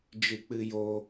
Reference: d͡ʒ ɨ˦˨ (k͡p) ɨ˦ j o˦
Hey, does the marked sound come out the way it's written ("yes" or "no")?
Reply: yes